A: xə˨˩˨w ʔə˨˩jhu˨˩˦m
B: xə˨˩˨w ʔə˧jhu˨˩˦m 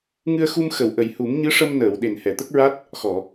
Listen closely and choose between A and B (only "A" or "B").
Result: A